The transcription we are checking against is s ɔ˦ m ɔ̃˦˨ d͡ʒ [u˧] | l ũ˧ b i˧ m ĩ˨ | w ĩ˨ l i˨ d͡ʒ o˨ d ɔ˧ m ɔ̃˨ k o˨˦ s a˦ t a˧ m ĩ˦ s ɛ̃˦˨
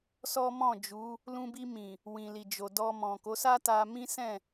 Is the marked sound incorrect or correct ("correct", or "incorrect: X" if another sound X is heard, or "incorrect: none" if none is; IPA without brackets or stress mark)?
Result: incorrect: u˨˦